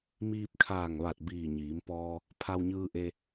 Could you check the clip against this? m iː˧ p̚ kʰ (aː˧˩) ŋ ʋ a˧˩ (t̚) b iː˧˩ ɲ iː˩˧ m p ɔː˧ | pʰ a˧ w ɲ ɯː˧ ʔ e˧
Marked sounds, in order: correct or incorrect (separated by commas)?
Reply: correct, correct